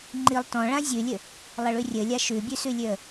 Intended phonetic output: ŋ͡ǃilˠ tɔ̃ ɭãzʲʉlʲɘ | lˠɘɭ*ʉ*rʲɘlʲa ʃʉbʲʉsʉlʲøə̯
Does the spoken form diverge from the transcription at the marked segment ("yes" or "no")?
no